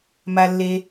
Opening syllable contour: low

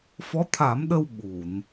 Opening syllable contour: rising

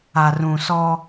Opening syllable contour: low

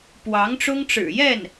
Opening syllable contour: rising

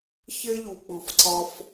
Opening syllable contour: high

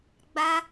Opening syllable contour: high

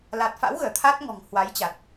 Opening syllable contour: low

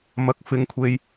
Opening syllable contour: rising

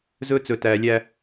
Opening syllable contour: high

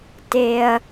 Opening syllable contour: low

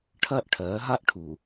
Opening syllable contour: high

